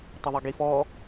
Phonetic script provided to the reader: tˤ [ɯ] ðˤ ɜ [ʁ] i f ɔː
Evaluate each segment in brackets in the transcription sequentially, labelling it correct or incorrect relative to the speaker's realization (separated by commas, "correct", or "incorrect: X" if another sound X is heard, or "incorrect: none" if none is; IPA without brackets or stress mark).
incorrect: ə, incorrect: ɡ